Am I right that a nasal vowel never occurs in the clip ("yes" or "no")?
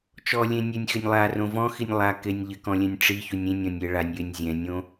no